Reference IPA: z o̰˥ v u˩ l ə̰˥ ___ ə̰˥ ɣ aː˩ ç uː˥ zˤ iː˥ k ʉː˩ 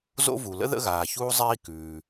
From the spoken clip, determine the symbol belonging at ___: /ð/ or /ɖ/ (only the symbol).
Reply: ð